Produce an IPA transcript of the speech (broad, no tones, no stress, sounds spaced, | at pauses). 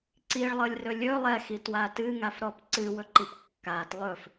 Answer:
ǀ i ɭ lˠ ɤ lʲ r ɵ lʲ ɵ lˠ ɛ x i t w a t ɨ ŋ a f ɾ ɔ p ǀ ɨ w ɵ ǃ i p kː a t lˠ ɵ f